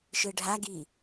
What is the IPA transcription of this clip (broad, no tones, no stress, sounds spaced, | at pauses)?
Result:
ʃ ɯ ɖʱ a ɡ i